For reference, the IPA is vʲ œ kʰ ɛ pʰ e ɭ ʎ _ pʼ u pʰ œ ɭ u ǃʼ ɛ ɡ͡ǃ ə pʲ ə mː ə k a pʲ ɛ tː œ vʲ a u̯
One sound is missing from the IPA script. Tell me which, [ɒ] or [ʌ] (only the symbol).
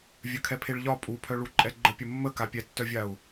ɒ